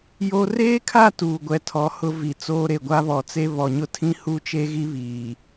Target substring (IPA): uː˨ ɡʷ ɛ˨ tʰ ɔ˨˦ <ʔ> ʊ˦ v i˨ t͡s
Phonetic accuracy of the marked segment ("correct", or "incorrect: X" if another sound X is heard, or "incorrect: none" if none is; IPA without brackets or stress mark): incorrect: h